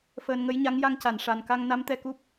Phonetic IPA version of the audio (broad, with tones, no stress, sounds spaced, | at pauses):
f əː˧ n ŋ ə˧˥ j ɲ a˧˥ ŋ j a˧ ŋ c a˨˩˨ n ʂ a˨˩ n k a˧ ŋ n a˧˥ m t̪ ɛ˧ k u˦˥ p̚